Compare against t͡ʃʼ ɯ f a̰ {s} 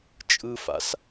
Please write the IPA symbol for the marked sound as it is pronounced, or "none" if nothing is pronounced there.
s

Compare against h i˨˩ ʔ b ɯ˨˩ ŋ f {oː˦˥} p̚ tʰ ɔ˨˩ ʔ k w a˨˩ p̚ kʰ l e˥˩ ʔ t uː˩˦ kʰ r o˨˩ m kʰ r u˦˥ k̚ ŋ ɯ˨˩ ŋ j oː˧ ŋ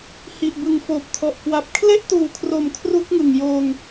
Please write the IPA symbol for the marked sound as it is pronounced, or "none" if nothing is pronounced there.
oː˨˩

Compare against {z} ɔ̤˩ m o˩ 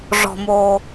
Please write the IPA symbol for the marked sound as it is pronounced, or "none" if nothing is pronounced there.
ʐ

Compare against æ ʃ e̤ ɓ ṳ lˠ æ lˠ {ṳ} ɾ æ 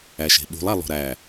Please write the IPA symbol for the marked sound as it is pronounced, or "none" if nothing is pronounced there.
o̤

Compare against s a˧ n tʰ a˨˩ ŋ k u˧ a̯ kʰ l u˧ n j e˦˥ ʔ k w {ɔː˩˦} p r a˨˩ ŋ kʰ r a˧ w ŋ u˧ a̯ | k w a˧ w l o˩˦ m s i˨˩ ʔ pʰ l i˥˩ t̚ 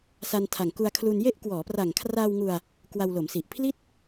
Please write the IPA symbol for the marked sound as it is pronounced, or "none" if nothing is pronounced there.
ɔː˩˦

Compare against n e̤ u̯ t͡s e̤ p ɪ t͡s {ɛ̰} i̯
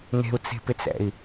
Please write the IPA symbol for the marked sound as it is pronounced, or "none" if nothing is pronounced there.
ɛ̰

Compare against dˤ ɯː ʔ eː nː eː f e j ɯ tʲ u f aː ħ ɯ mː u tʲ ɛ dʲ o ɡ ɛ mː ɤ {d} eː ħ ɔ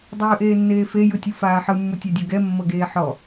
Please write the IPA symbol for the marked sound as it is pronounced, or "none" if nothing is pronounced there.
ɡ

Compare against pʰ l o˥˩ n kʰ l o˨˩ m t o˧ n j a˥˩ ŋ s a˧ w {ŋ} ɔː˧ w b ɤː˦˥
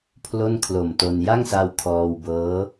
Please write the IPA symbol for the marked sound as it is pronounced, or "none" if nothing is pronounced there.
kʰ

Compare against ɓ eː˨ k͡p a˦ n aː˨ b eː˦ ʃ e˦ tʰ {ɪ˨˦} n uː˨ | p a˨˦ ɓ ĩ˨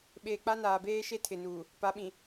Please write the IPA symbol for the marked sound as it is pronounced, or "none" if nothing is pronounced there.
ɪ˨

